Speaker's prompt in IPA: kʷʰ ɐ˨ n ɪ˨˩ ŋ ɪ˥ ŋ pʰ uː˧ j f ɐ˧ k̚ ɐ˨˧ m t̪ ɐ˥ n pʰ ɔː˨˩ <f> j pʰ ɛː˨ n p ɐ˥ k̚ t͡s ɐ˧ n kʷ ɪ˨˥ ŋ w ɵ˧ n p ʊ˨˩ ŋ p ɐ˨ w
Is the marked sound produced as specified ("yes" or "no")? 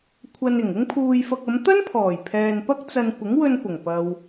no